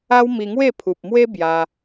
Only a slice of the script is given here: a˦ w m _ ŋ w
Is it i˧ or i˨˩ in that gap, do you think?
i˧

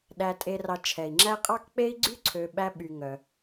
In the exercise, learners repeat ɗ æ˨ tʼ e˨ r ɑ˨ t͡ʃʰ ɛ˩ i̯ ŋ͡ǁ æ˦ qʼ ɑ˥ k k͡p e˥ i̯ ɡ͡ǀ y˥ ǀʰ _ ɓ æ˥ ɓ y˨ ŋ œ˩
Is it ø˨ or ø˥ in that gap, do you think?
ø˨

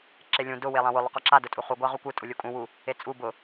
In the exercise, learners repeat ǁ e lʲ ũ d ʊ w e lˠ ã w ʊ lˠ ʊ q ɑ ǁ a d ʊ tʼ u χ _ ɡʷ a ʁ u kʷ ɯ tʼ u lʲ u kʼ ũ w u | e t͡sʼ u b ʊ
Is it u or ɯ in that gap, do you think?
u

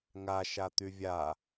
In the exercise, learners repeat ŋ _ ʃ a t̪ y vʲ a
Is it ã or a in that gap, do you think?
a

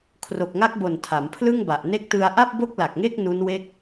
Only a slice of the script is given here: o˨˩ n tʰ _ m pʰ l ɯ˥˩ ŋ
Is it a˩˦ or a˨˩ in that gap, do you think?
a˩˦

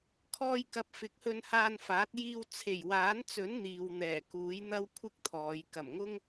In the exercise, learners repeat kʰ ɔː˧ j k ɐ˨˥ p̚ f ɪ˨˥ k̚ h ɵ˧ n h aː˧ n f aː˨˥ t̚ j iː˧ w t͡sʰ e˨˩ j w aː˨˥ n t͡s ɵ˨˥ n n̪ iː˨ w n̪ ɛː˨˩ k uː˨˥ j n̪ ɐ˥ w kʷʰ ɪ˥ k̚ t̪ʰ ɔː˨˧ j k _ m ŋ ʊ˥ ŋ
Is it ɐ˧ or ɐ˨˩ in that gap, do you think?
ɐ˨˩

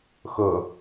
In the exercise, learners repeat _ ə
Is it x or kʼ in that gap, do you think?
x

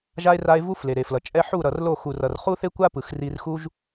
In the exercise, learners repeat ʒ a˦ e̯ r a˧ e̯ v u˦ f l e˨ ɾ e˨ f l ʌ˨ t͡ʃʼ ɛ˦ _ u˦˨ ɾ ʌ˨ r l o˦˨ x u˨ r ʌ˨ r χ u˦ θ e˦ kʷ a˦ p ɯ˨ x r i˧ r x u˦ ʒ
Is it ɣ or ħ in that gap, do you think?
ħ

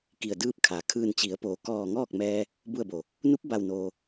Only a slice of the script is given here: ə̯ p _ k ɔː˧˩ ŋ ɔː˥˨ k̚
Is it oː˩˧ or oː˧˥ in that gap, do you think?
oː˩˧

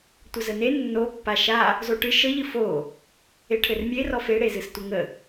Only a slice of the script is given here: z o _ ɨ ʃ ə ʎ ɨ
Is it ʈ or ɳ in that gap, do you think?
ʈ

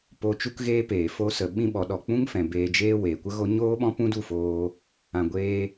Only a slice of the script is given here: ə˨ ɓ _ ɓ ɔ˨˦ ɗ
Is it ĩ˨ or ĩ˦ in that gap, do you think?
ĩ˦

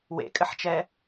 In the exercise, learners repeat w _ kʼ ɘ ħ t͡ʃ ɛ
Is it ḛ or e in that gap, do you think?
ḛ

